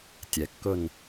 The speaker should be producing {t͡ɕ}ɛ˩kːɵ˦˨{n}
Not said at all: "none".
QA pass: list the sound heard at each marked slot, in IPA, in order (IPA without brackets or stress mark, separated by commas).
tʲ, n